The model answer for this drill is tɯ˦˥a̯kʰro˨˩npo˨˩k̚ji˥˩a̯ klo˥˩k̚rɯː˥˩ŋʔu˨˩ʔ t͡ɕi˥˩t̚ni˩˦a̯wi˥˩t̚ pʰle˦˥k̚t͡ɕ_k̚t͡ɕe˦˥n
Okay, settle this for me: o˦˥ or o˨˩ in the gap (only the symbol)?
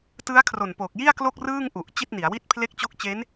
o˦˥